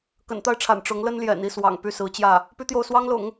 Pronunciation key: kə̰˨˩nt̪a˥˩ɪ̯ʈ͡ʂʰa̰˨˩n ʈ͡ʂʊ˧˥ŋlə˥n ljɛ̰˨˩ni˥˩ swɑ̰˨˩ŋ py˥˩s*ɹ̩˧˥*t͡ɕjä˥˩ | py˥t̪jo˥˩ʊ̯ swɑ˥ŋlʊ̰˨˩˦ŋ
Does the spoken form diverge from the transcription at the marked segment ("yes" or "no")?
no